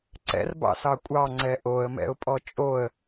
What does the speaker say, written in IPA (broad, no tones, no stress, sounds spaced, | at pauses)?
ǀ ɛ̰ r b ɑ̰ s ɑ kʷʼ ɑ ŋ͡ǀ ɛ ʔ o ə̯ m ɛ̰ ʊ̯ pʼ ɔ t͡ʃʼ o ə̯